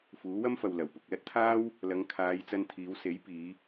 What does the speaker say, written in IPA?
f uː˨˥ w ɐ˥ m f ɐ˨ w l ɐ˨˩ w p ʊ˨ k̚ l ɐ˥ t̚ t̪ʰ aː˥ w | l ɐ˨˧ ŋ kʰ aː˨˧ j t͡s ɐ˧ n t̪ʰ iː˨˧ w s e˨˥ j p iː˨˧

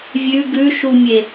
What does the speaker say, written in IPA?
vʲ ʉ ɡ ʉ ʃ u mʲ e

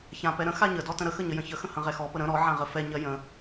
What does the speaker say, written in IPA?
ç ã p ɛ ɾ ə̃ x a ɲ ə d ɔ t ə̃ ɾ ə x ə ɲ ə j ə̃ ç ə x ə̃ h ə̃ ʁ ɛ x ɔ p ə ɾ ə̃ ɾ ɔ ʕ ã ʁ ə f ɛ ɲ ɜ j ə̃

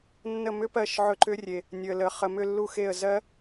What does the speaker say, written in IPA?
nː ə˦˨ m ʏ˦˥ p ɜ˦˨ ʃ ʕ ɵ˦˨ ǃ ʏ˦˥ rʲ e˨ | nʲ ɵ˨ ə̯ l ə˨ χ ə˨ m ʏ˦˨ lː u˦˨ x e˦˨ ə̯ z ɜ˦˥

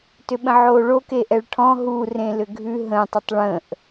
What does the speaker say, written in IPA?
t ʏ ɓ ə̃ ʕ oː ɭ o k e ʔ ɛ ɭ ʈʰ ɔ̃ ɦ u r ẽ l ʏ ɡʱ ʉ ɦ ə̃ tˤ ə tˤ ɭ ə̃ː ʔ

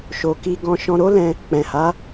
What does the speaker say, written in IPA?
ʃ o˨ k i˧ ɡ ɔ̃˧ ʃ ɔ̃˧ ɾ o˦ l ɛ̃˧ | k͡p ɛ̃˨ h a˨˦

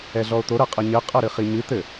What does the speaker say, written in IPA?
ɛ ɮ ɔ o̯ t̪ o ɾ ɐ qʼ ɘ ɲ ɘ qʼ ɐ ɾ ɨ χ i ɲ ɨ t̪ ɘ

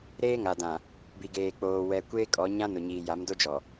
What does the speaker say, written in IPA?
ɾ eː˦ ŋ a˨ d ã˨ | b i˨ ɡ eː˨ k͡p oː˨ w ɛ˨ kʷ eː˦ kʼ ɔ˨˦ ɲ ã˦ n ʊ˨ ɲ iː˨ j a˨˦ m d o˦ d͡ʒ ɔ˨

